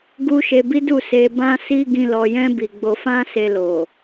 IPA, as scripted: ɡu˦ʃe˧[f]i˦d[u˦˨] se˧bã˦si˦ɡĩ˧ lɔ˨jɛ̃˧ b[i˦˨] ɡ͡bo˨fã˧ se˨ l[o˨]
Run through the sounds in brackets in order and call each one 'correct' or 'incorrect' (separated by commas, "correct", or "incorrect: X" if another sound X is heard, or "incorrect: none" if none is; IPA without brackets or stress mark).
incorrect: b, correct, incorrect: i˨, correct